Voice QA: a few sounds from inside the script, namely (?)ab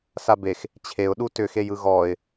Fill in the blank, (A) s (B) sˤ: A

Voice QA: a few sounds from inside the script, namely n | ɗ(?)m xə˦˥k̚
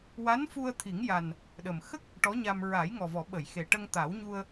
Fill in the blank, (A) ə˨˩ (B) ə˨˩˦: A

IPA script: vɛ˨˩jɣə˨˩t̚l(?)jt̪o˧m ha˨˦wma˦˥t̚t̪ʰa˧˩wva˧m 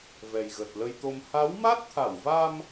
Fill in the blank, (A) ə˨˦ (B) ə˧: B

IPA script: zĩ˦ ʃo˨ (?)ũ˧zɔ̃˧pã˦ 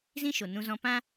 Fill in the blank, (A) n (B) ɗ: A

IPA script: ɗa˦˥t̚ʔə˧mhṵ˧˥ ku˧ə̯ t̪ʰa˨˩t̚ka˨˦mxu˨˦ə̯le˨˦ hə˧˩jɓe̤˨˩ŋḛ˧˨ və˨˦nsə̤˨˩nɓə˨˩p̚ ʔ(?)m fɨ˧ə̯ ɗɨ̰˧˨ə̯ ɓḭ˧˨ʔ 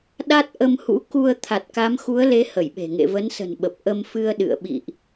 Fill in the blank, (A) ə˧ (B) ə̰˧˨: A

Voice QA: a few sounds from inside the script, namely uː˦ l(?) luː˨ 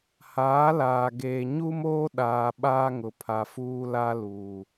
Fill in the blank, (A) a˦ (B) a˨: A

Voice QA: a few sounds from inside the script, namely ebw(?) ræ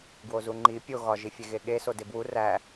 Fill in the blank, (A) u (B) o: A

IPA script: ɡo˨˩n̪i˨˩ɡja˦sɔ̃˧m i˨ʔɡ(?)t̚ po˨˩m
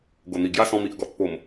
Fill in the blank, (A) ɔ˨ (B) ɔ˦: A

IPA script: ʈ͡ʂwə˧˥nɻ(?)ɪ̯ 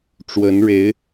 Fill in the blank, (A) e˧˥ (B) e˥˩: A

